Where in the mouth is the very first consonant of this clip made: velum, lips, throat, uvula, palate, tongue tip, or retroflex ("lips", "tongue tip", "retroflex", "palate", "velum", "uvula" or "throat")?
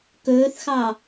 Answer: velum